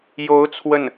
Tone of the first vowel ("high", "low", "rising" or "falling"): rising